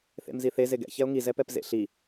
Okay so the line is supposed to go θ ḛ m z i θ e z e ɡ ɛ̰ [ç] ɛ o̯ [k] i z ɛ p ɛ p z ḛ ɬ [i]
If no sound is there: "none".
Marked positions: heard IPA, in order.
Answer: ç, ŋ, i

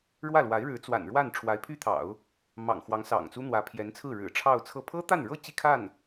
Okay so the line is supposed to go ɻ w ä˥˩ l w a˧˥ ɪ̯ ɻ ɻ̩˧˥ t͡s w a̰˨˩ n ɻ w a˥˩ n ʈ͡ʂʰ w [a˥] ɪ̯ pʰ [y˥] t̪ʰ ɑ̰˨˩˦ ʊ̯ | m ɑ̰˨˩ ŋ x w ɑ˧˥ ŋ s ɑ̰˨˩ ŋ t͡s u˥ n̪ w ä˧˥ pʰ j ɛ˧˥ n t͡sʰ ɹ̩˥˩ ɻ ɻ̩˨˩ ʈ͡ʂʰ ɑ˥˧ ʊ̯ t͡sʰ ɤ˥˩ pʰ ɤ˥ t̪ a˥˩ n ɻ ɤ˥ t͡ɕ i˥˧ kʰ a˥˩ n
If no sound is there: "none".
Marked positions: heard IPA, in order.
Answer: a˧˥, y˥

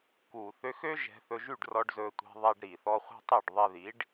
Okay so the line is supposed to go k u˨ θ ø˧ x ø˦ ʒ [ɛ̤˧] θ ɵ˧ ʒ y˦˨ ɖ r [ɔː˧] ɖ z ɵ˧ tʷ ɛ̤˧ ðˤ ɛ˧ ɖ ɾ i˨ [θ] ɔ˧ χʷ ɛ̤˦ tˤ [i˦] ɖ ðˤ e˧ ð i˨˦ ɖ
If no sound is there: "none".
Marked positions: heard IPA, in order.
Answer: ɛ̤˧, ɔ˧, θ, i˦˨

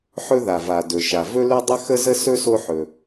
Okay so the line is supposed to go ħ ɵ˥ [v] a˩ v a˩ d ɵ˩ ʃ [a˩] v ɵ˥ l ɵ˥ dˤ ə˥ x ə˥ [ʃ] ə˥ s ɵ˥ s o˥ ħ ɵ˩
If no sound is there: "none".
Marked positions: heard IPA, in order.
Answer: ð, a˩, z

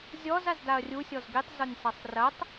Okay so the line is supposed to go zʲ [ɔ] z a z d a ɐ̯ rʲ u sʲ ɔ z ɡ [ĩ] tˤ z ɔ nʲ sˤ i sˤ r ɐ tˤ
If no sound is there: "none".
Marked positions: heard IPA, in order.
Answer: ɔ, i

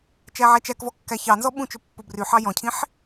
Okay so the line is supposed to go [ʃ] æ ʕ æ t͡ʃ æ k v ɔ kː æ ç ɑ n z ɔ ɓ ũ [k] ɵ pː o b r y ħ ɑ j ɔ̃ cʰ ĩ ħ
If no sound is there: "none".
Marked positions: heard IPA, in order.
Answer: t͡ʃ, t͡ʃ

